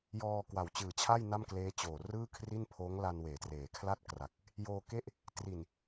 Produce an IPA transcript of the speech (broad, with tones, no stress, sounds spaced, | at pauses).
j ɔː˧ k w a˨˩ w t͡ɕ ɯː˨˩ t͡ɕʰ a˥˩ j n a˥˩ m k l eː˦˥ t͡ɕ oː˨˩ r ɯː˥˩ kʰ r i˥˩ n pʰ oː˦˥ ŋ l a˧ n w eː˩˦ t r eː˩˦ kʰ l a˥˩ t̚ k r a˨˩ k̚ | j oː˧ k e˥˩ ʔ | t r i˨˩ n